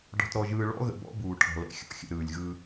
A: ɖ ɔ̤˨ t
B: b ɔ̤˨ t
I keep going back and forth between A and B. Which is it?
A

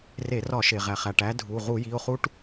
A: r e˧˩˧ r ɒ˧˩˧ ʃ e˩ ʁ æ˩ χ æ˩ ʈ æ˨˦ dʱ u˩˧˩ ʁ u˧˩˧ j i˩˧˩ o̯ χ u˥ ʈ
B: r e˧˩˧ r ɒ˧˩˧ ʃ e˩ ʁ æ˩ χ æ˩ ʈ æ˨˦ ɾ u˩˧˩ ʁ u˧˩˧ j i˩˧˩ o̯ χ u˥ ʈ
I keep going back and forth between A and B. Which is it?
A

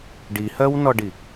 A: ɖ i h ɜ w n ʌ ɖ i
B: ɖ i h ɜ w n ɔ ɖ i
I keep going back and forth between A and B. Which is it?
B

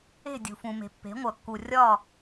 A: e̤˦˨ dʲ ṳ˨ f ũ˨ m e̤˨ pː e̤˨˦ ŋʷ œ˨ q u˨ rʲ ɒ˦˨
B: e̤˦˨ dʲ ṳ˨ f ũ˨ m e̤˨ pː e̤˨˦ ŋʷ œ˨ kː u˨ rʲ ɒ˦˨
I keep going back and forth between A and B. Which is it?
B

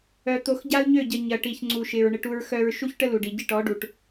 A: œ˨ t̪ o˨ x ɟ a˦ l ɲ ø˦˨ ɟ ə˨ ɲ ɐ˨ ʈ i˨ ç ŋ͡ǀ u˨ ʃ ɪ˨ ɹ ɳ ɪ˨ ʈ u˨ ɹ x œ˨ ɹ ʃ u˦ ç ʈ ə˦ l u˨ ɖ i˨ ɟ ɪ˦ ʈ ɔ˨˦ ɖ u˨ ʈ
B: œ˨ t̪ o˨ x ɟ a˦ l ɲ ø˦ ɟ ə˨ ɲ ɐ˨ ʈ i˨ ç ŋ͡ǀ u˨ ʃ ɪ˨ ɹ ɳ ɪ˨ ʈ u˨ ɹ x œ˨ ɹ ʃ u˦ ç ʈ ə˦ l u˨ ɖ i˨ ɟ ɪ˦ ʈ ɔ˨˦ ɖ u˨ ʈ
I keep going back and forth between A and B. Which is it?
A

